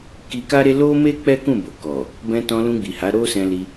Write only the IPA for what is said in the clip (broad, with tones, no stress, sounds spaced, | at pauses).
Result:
k i˧ k a˦ ɾ e˦ l o˦ m e˦ k͡p ɛ˦ k ũ˦˨ b o˨ k ɔ˨ | b ɛ̃˧ t ɔ̃˧ l ũ˧ ɡ͡b i˨ h a˨˦ ɾ o˦ s ɛ̃˧ l i˧